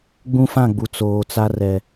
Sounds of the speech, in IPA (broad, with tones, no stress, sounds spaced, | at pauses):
ɡ͡b ũ˦ f ã˦˨ ɡ͡b u˨ t͡s oː˨ t͡s a˦ r ɛ˨